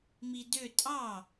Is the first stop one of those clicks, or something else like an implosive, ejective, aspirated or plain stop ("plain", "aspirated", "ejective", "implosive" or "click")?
plain